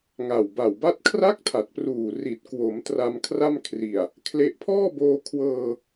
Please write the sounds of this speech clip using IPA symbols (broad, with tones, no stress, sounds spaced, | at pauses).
ŋ a˨˩ w b a˨˩ w b a˥˩ t̚ kʰ r a˥˩ k̚ tʰ a˨˩ t̚ p r uː˨˩ r i˨˩ t̚ k w o˩˦ m t r a˧ m kʰ r a˥˩ m kʰ r i˨˩ a̯ | kʰ l e˥˩ ʔ pʰ ɔː˥˩ b oː˧ kʰ w ɤː˧